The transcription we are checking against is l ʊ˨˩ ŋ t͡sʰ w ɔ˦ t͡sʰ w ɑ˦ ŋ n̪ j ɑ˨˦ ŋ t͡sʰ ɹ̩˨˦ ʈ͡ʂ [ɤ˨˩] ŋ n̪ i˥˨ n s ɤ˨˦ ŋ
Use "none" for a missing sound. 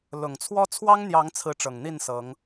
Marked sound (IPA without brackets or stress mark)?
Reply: ɤ˨˩